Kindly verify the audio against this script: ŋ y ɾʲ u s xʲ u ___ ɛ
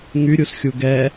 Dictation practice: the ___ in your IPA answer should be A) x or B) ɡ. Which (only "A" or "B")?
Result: B